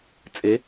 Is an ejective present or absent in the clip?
present